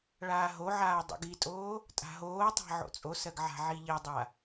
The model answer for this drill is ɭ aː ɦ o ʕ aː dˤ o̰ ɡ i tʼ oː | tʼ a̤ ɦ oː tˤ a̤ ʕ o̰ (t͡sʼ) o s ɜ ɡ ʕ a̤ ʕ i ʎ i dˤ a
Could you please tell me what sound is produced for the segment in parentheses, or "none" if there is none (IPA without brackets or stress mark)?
t͡sʼ